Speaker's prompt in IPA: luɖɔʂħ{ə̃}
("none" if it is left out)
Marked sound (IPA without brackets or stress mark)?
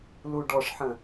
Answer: ə̃